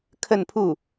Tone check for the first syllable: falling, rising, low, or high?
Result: falling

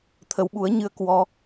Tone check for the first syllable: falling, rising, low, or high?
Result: rising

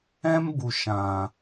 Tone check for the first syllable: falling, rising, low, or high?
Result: high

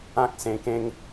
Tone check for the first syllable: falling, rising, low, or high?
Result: high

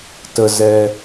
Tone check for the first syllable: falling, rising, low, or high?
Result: low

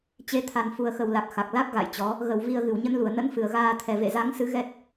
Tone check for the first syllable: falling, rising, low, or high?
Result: rising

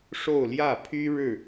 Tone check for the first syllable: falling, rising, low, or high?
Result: falling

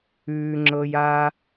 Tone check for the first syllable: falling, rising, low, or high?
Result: low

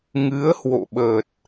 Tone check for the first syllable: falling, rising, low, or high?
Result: rising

